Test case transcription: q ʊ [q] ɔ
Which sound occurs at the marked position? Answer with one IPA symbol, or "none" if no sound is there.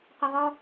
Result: ʁ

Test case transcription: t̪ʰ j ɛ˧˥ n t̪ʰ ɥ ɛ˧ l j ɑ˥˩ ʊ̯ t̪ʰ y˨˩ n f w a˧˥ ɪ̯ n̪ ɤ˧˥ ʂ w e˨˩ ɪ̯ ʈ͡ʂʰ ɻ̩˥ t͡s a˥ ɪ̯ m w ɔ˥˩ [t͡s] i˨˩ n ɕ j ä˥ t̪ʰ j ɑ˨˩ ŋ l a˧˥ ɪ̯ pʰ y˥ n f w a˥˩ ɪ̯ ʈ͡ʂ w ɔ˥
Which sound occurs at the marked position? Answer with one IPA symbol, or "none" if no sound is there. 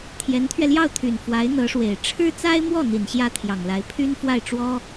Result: n̪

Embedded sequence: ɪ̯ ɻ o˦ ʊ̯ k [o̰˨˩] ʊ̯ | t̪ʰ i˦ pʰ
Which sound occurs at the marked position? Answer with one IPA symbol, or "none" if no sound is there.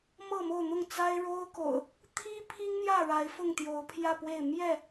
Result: o̰˨˩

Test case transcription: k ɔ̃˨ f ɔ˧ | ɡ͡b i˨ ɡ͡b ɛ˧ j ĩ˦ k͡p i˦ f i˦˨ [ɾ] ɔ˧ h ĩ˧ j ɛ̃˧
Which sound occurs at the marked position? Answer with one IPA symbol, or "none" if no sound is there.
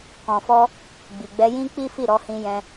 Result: ɾ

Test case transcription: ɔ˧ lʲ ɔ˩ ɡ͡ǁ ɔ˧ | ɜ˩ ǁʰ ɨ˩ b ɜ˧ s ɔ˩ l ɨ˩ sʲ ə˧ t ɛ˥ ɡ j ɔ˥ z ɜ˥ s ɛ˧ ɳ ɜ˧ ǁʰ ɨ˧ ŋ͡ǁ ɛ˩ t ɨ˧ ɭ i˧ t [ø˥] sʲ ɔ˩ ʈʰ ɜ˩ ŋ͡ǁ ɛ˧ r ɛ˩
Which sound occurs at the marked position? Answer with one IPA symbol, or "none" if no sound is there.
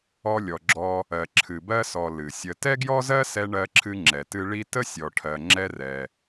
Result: ə˥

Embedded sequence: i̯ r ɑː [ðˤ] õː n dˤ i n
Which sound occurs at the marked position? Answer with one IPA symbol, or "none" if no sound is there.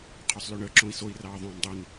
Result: ðˤ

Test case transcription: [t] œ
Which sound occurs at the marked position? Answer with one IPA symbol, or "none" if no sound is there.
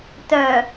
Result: t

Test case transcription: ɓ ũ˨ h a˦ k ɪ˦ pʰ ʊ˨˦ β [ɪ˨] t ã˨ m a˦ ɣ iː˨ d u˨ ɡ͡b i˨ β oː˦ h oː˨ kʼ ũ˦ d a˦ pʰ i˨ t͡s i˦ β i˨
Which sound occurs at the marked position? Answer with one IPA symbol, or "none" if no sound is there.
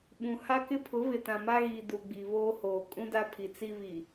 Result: ɪ˨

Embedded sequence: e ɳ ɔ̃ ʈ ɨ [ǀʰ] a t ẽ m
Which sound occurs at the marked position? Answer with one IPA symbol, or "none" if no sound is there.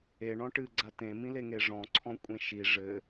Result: ɡ͡ǀ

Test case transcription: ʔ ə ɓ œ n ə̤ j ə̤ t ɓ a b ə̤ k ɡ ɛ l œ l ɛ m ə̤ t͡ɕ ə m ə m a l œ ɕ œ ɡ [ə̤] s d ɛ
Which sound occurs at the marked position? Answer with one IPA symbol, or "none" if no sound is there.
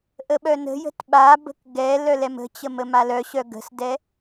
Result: ə̤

